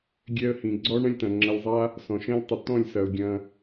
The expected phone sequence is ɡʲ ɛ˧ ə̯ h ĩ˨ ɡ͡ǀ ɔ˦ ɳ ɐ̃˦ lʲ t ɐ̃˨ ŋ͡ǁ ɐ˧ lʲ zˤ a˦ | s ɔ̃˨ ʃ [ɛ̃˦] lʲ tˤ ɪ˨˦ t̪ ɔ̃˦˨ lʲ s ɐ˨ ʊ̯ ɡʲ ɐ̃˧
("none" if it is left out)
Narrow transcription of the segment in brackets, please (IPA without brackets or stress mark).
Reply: ɛ̃˦